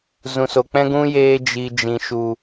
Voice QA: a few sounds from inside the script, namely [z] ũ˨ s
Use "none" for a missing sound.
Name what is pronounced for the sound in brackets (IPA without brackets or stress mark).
z